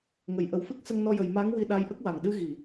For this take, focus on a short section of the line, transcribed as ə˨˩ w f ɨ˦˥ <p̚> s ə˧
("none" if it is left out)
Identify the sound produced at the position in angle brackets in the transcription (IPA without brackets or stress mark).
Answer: k̚